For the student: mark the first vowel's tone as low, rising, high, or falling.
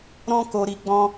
high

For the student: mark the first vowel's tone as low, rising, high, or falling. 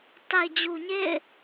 low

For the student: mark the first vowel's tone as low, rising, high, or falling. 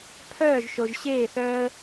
falling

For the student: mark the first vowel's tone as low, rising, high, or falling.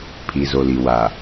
low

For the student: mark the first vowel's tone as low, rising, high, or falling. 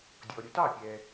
low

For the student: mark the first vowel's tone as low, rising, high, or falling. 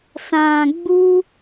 low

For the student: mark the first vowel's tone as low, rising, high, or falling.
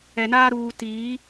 low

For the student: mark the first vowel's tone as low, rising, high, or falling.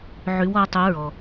rising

